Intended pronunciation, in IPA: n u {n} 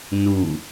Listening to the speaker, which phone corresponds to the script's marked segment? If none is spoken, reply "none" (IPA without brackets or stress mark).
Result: none